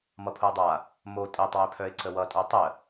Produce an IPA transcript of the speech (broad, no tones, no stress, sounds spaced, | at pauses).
m ʌ pʰ ʊ ə̯ dˤ a | m o tʼ e tˤ w e pʰ œ ɪ̯ ǀ ə w ʌ tʼ o tˤ ə